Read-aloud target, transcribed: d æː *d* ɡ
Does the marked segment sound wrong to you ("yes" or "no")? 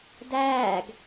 yes